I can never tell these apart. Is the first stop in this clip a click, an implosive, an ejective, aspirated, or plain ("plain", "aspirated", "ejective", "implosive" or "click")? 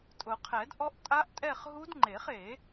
ejective